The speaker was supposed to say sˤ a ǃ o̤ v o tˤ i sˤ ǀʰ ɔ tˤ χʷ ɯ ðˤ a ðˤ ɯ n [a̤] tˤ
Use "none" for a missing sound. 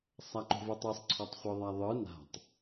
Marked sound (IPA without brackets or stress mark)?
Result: a̤